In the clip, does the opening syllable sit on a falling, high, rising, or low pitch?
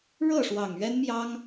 falling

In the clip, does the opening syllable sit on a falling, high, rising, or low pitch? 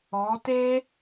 rising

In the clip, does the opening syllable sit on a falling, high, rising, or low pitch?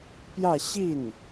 falling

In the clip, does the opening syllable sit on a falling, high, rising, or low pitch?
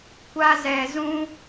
high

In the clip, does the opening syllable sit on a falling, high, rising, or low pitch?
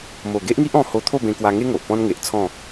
low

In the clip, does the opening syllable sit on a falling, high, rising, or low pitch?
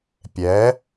rising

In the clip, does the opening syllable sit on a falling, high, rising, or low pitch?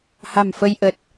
low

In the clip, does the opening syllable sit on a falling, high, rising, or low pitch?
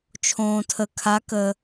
low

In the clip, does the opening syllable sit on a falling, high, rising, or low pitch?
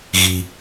low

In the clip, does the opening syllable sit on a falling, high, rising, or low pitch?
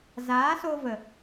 rising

